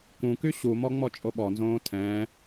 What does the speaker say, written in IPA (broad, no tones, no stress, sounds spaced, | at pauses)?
k ũ k y ɕ u m ɔ ŋ͡m ɔ t͡ʃʼ o ɓ ɔ n z õː tʰ ɛ̃